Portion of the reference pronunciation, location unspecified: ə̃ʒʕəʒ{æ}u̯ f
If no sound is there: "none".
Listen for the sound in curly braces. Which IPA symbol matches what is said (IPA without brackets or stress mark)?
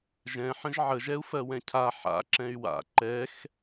ɛ